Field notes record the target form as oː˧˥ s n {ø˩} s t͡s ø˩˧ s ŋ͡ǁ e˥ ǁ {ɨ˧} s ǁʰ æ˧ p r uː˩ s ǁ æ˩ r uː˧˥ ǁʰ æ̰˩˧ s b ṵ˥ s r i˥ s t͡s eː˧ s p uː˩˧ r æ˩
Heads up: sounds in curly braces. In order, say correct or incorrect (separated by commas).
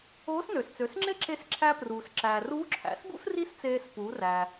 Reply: correct, incorrect